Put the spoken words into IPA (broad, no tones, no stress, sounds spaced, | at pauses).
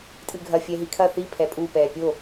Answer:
tʼ ɨ ɡʱ ɐ fʲ ɛ ɦ i kʰ ɐ θ i pʰ ɛ pʼ u p ɛː pʲ o